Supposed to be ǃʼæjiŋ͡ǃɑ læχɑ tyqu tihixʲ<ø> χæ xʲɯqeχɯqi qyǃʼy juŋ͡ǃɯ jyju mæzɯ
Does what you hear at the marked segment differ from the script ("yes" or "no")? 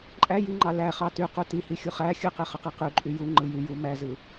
yes